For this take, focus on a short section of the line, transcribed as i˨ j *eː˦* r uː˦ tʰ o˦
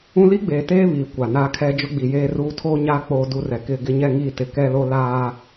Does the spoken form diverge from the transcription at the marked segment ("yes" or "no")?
no